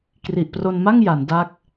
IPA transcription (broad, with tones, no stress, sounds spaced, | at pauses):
k r i˨˩ ʔ p r o˧ n m a˥˩ ŋ j a˩˦ n d a˦˥ k̚